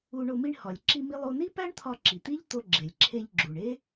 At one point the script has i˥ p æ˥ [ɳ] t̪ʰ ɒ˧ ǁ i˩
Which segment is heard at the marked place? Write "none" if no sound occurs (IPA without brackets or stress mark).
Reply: ɳ